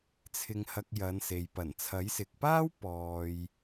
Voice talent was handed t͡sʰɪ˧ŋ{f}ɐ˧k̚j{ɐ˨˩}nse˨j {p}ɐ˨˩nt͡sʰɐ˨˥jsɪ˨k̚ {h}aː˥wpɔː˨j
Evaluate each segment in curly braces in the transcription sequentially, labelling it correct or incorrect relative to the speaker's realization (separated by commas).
incorrect, incorrect, correct, incorrect